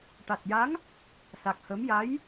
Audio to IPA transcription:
ʈ a˨˩ t̚ j a˧˥ ŋ | s a˨˩ k̚ h ə˧˥ m j a˧˥ j

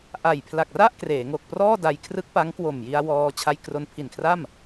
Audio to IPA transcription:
ʔ a˨˩ j pʰ l a˨˩ k̚ r a˥˩ ʔ k r eː˩˦ ŋ o˨˩ k̚ p r ɔː˥˩ d a˧ j kʰ r ɯ˦˥ k̚ p a˦˥ ŋ k w o˨˩ m j i˧ a̯ w ɔː˧ t͡ɕʰ a˧ j k r o˧ n pʰ i˨˩ n kʰ r a˥˩ m

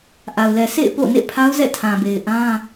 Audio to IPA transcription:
ʔ a˨ ʊ̯ l ɛ˨ sʰ ḛ˦˨ ɪ̯ p o̰˦˨ n ḛ˦˨ pʰ a˦ ʊ̯ z ɛ̰˦˨ tʰ ã˨ b e˨ ɪ̯ ʔ ã˦

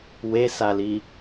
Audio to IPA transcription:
w e s a l i

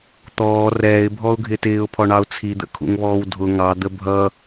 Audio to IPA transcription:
t̪ ɔː r ɛː ɪ̯ bʱ ɔ ʊ̯ ɡʱ ɪː t ɪː ʊ̯ pʰ ɔ ɳ ɑ ʊ̯ t͡sʰ i d̪ ə̰ kʰ ṵ ŋ β ɔː w dʱ ʊ ŋ ɑ d̪ ə bʱ ʌ

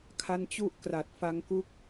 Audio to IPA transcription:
kʰ a˦˥ n t͡ɕ u˥˩ ʔ k r a˨˩ t̚ f a˧ ŋ k u˦˥ k̚

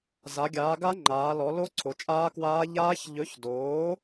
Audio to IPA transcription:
z a˨˦ ɡʲ aː˨˦ ɡ a˦˥ ŋ͡ǃ aː˨˦ l ɔ˨˦ l o˦˥ ǀʰ o˨˦ t͡ʃʼ aː˦˥ k w aː˦˥ ʎ aː˦˥ ç ʎ ɵ˨˦ ç d oː˨˦

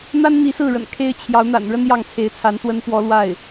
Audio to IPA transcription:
n̪ a˥ n n̪ i˧˥ s ɹ̩˥˩ ɻ ə̰˨˩ n kʰ e˥ ɪ̯ t͡ɕʰ j ɑ˧˥ ʊ̯ n̪ a̰˨˩ n ɻ ə˥ n j ɑ˥˩ ŋ t͡sʰ e˧˥ ɪ̯ t͡sʰ a˧˥ n s w ə˥ n p w ɔ˥ l w a˥˩ ɪ̯

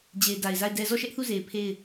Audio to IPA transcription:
d͡ʑ e˨ ɪ̯ d a˨ ɪ̯ z a˦˨ ɪ̯ d ɛ˦ z ɔ˦˨ ʃ ɛ˦ ʔ θ u˦˨ z e˨ ɪ̯ pʰ e˦˨ ɪ̯

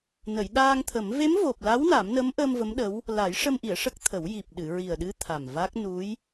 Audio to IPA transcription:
n ə˨˩˨ j ɗ aː˧ ŋ t̪ʰ ə˨˩˦ m v e˧˥ m v o˨˩ p̚ l a˧˥ w n a˨˩˦ m n ə˧˥ m ʔ əː˧ m v ə˧˥ m ɗ ə˧˥ w | l a˨˩˦ j ʂ ə˧ m ʔ i˨˩˨ ə̯ ʂ ə˦˥ k̚ t̪ʰ ə˨˩˦ w j i˨˩ p̚ ɗ ɨ˨˩˨ ɹ i˨˩ ə̯ ɗ ɨ˧˥ t̪ʰ a˨˩ m v a˦˥ k̚ n u˧˥ j

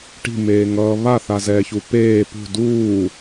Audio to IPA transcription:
ʈ i̤ m eː ŋ ʌː β a θ a z ɛː ç u p eː p ṳ d uː

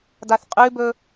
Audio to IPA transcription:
d a θ qʼ ʉ b ɵ

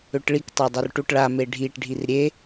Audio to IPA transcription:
ø ʈ ɭ i k tˤ ø dˤ u r ʈ u ʈ ɭ a m e ɖʱ i ʈ ɖʱ i r ɾʲ e

